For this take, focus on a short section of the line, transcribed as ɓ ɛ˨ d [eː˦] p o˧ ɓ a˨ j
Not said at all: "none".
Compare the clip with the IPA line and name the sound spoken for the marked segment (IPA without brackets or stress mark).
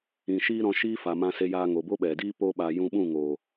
iː˦